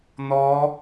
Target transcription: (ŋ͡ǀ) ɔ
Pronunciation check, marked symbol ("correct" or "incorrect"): incorrect